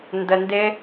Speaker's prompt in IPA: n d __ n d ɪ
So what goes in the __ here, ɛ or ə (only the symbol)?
ə